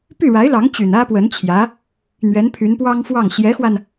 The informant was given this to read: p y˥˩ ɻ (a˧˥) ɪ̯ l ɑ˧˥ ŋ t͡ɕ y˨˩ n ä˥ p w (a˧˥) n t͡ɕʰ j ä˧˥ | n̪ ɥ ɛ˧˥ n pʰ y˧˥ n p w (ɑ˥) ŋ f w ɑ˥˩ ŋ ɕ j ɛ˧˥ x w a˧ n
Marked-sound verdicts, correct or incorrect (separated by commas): correct, incorrect, correct